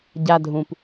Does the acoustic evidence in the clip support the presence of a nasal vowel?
yes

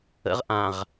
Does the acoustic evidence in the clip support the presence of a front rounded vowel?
no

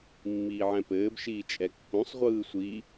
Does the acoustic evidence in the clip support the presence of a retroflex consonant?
no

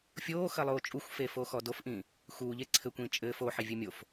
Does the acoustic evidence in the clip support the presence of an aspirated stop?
yes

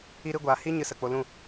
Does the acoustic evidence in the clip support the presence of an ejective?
no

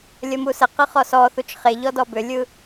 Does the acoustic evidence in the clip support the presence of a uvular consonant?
yes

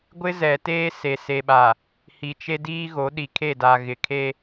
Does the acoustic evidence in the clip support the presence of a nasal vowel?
no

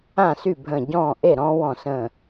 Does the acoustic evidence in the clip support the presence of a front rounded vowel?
yes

